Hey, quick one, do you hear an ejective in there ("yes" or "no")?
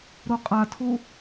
yes